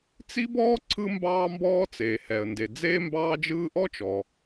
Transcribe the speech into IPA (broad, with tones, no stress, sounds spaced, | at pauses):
t͡s i˥ b ɔː˥ ǀʰ ɯ˥ m b ɑː˥ m b ɔː˥ t͡s eː˩ h ɛ˩ ə̯ n d e˩ d͡z eː˥ m b ɑː˥ d͡ʒ ɯː˥ ʔ ɔ˥ t͡ʃ ɔ˩